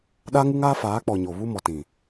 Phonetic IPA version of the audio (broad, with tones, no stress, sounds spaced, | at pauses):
ɗ a˦ ŋ u˦ ŋ aː˦ f aː˨˦ k͡p ɔ˨ ɲ o˨ β u˦ m ɔ˨ t ĩ˨